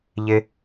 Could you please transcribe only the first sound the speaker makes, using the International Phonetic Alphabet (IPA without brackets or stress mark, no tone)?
ʎ